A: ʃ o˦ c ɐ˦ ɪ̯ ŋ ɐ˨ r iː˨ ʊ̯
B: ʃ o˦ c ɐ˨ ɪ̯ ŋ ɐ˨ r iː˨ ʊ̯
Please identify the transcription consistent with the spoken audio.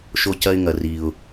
A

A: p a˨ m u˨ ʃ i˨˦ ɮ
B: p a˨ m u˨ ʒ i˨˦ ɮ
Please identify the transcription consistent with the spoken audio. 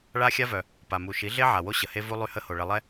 A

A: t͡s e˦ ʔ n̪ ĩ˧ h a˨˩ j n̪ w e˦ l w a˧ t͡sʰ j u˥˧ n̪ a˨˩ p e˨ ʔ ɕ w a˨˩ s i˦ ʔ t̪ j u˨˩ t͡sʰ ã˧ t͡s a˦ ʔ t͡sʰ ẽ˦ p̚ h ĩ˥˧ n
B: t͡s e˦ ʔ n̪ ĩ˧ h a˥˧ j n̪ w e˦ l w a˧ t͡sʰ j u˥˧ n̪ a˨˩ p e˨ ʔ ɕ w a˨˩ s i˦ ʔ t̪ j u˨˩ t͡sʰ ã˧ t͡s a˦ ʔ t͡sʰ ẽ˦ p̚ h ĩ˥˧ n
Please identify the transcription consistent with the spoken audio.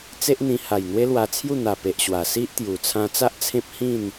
A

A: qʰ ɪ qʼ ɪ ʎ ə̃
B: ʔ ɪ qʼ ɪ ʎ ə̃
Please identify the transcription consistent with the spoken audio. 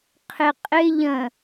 A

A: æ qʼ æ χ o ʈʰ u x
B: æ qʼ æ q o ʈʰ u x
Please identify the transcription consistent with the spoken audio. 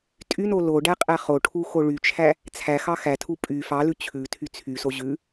A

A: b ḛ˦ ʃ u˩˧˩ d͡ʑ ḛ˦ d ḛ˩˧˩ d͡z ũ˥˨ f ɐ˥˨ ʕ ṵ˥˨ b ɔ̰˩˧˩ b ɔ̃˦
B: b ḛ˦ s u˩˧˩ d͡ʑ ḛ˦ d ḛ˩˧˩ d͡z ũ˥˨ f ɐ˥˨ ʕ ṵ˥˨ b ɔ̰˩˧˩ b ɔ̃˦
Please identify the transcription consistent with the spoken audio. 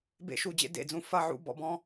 A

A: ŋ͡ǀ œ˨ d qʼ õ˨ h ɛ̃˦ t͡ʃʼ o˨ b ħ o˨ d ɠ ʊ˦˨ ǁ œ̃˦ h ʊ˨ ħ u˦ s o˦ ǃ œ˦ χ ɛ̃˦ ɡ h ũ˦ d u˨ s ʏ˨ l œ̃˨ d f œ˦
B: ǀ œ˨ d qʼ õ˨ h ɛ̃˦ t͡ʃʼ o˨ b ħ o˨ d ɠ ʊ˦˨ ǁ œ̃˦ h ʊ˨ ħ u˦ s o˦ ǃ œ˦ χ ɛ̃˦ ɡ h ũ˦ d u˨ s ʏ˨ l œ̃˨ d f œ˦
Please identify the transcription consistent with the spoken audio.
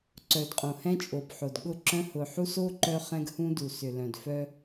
B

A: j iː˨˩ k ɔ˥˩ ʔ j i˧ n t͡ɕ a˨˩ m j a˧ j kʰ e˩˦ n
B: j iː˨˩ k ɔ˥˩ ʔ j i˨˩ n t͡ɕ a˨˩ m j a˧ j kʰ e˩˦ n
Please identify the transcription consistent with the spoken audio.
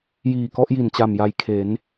B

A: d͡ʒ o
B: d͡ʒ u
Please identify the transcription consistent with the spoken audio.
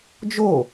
A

